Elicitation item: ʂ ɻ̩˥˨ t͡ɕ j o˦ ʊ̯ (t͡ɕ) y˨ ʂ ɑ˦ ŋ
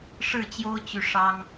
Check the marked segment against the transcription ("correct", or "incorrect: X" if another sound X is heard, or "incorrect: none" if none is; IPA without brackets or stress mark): correct